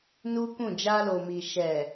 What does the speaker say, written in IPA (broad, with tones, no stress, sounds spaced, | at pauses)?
n u˦ k ũ˦˨ d͡ʒ a˧ l o˨ m i˨ ʃ ɛ˨